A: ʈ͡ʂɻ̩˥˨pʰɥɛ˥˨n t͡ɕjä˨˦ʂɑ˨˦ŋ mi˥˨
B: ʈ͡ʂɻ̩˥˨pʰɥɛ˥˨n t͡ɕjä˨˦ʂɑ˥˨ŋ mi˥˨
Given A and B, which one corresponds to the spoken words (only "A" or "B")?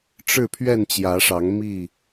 A